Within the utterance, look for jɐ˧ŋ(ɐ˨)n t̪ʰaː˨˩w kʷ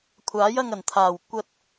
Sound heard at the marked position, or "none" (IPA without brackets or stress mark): ɐ˨˩